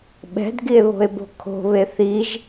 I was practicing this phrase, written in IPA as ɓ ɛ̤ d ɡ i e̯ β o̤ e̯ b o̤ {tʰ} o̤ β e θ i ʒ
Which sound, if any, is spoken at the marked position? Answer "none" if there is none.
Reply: kʰ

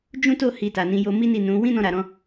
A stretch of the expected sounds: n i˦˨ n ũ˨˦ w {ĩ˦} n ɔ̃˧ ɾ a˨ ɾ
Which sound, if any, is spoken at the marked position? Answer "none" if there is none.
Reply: ĩ˦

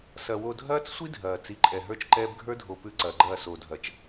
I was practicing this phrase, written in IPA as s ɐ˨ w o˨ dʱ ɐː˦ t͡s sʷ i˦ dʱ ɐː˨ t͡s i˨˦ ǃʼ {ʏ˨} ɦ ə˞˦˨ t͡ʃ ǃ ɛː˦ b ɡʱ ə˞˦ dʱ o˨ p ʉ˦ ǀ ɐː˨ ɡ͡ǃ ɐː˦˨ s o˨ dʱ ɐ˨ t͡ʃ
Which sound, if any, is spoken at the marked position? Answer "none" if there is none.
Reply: ɛ˨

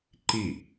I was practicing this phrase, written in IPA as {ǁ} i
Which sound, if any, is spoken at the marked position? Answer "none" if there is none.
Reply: ǃ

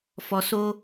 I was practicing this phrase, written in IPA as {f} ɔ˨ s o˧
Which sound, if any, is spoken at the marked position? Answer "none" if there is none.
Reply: f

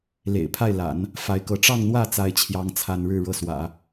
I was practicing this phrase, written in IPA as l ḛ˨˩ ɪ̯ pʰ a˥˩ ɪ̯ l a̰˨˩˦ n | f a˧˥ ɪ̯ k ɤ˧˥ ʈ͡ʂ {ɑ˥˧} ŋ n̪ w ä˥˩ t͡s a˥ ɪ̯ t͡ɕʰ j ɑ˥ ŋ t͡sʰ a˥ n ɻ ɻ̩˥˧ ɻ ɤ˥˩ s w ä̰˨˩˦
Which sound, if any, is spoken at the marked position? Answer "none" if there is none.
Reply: ɑ˥˧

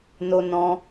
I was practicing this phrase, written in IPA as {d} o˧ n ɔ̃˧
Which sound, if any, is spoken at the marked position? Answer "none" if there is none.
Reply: n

